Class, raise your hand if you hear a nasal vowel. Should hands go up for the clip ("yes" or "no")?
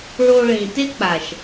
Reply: yes